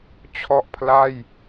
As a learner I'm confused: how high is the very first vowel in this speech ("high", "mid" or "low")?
mid